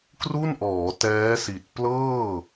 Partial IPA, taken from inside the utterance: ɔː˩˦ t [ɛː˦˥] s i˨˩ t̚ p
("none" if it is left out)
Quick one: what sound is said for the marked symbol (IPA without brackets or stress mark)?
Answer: ɛː˦˥